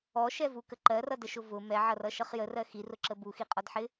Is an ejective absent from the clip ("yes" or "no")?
no